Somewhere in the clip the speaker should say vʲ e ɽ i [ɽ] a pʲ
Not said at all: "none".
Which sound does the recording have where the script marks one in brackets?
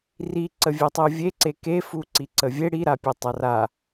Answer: ɾ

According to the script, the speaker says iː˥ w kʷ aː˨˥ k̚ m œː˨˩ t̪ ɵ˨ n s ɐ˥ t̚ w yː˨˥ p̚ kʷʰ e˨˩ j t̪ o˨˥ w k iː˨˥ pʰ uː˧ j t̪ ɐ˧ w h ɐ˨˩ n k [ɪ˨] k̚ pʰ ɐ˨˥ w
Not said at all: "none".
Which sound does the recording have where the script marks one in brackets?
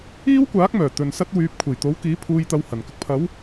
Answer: ɪ˨˥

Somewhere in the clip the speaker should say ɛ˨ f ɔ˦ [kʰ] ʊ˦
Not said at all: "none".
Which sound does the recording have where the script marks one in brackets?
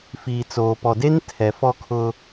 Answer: kʰ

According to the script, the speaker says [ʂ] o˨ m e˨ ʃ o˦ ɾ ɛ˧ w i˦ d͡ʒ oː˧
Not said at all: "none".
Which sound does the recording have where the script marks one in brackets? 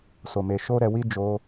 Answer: s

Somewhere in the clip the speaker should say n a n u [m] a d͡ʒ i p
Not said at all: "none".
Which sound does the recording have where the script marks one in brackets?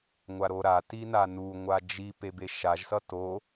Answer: ŋʷ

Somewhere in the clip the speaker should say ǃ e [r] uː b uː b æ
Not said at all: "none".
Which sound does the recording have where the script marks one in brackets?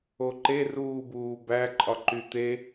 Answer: r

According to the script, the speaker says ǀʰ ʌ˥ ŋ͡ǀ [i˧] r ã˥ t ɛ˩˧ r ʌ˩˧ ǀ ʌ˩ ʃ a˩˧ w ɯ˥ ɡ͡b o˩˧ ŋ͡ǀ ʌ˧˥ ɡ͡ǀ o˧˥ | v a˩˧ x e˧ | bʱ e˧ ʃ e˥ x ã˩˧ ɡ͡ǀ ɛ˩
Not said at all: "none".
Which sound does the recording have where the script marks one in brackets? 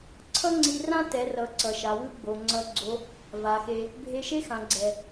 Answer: i˧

